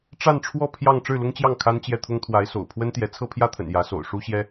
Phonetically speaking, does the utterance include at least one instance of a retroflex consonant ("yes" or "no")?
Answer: yes